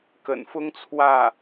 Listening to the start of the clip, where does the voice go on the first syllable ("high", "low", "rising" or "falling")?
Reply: low